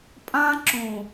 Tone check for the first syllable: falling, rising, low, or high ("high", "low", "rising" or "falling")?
high